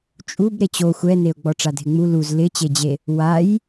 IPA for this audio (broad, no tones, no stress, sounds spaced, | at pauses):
t͡ʃʼ u b ɾ e t͡ɕ o xʷ ɛ n e ʊ̯ ɡ͡b ɔ ʈ͡ʂ a dʱ ɪ ŋ͡m u l u z l ɪ t͡ɕ e d͡ʑ e | w a j